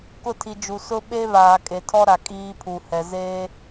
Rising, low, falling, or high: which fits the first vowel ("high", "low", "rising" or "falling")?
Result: falling